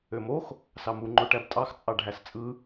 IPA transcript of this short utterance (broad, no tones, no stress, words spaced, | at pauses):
ømox | sɑmu ŋ͡ǃoʈæbtʼɑx t͡sʼɑɖʱæst͡sʼɯ